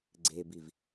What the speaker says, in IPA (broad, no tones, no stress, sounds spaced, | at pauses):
ɡ͡ǀ e b i v